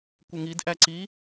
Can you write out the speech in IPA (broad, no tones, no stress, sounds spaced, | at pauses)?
kʷ ɪ ŋ i d ʔ æ ǀ i